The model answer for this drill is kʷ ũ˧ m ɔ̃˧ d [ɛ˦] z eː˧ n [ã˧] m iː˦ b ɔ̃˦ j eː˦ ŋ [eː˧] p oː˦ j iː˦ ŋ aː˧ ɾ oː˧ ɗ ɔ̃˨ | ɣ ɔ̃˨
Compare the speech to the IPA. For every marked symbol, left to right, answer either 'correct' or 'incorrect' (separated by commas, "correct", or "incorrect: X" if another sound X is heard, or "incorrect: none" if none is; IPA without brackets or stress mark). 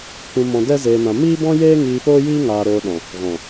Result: correct, correct, incorrect: iː˧